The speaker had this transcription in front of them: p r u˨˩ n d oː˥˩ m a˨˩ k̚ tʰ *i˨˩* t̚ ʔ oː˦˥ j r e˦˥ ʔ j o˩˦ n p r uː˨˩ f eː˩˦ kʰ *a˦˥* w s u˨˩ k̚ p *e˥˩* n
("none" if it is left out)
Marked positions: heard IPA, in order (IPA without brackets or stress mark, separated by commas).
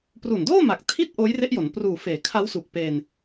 i˥˩, a˦˥, e˧